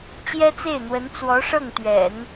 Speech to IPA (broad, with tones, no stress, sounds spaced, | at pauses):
t͡ɕ j ɛ˥ t͡s e˥˩ ɪ̯ n̪ w ə˧˥ n t͡s w ɔ˧˥ ʂ ɤ˥˩ ŋ t̪ ɥ ɛ̰˨˩˦ n